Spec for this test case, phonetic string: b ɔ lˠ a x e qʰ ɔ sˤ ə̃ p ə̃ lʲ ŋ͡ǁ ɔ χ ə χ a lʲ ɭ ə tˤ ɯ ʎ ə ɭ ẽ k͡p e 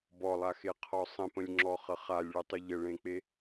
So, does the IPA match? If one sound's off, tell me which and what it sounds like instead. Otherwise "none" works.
none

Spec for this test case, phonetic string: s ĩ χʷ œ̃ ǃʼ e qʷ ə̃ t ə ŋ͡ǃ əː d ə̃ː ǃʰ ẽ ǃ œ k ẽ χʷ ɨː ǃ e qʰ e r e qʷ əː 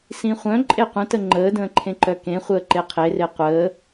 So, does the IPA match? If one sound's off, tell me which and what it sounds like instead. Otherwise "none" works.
ɨː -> əː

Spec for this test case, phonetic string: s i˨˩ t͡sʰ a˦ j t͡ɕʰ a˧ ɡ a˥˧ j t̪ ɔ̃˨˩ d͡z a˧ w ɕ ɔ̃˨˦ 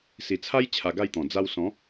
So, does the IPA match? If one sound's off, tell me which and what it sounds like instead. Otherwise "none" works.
ɕ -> s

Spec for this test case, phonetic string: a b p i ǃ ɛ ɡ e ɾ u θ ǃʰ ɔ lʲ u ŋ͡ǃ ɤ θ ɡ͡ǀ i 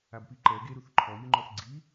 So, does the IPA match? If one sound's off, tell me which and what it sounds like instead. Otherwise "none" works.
ɤ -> ɔ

